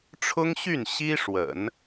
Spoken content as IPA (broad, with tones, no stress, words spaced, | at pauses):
ʈ͡ʂʰʊ˥ŋɕy˥˩n ɕi˥ ʂwə̰˨˩˦n